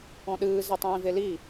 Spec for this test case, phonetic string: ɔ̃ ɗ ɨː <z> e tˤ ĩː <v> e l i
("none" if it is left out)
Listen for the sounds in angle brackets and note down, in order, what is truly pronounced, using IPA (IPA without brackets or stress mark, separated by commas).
z, v